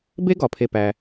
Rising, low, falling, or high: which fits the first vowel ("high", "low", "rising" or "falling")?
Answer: high